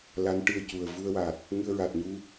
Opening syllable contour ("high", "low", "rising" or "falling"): rising